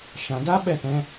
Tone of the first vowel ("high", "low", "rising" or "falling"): low